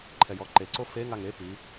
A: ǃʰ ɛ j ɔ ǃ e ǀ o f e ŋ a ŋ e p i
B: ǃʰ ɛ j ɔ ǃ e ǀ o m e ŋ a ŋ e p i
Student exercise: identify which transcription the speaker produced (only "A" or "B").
A